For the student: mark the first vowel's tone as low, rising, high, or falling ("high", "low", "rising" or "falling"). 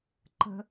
high